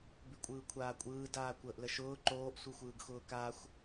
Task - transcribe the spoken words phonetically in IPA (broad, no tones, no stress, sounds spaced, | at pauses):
b ʉ kʷʼ ɯː kʷʰ aː kʷʼ ɯː d aː kʷ əː ʔ l ə ʃ ʊː ǃ oː ʔ sʷ ɯ xʷ ɯː ɡ x ʊː k a xʷ